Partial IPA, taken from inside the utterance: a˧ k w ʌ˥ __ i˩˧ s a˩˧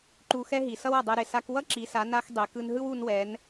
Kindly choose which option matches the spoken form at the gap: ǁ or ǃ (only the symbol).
ǁ